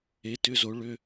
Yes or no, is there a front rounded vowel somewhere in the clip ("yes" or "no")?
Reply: yes